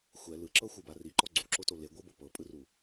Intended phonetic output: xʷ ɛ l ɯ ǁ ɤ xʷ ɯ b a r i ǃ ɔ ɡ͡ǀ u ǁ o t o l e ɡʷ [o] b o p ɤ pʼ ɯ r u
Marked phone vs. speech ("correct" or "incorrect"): incorrect